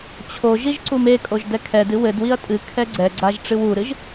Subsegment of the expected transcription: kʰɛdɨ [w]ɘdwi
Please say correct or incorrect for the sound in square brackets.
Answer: correct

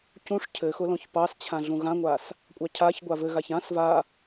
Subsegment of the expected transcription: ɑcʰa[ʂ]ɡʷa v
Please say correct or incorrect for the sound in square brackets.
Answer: incorrect: ç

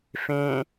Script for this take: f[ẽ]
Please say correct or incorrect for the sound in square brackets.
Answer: correct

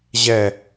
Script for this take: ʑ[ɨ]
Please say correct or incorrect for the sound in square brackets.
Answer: incorrect: ɛ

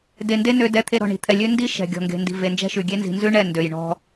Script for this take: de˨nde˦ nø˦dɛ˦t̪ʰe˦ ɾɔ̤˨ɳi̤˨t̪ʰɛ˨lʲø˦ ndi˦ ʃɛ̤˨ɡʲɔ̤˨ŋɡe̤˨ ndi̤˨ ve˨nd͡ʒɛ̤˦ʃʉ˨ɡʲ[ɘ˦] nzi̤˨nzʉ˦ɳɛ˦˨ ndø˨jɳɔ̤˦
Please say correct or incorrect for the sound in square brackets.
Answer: incorrect: e˦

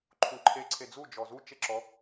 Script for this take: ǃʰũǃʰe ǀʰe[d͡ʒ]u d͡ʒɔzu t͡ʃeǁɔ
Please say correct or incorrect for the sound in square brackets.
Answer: incorrect: d͡z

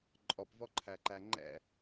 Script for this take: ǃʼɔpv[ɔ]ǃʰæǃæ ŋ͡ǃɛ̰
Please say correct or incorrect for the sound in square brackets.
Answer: correct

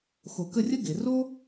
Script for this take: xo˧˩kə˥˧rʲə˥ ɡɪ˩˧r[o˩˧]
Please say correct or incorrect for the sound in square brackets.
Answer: incorrect: o˥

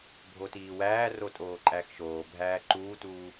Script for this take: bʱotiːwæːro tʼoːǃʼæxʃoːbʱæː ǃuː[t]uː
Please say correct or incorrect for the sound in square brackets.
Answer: correct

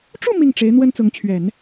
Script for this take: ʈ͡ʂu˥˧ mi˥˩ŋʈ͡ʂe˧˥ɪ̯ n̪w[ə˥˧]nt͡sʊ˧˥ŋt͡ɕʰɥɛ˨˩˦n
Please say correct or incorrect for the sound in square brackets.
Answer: incorrect: ə˥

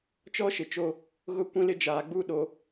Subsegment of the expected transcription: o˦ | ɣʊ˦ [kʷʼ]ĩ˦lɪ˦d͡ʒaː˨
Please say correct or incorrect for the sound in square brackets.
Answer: incorrect: kʷ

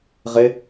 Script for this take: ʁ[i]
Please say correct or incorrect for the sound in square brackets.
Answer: incorrect: e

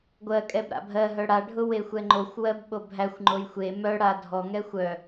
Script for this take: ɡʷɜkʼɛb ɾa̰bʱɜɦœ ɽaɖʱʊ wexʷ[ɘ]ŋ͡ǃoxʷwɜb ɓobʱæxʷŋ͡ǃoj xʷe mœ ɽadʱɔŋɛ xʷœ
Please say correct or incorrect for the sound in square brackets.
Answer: incorrect: ɛ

